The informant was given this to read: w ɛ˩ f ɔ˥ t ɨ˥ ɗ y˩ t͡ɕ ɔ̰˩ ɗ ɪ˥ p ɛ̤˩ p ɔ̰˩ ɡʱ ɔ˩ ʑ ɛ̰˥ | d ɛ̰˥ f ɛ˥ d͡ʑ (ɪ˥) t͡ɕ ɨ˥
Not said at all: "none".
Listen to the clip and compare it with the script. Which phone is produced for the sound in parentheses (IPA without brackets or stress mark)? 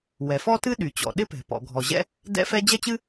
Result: ɛ˥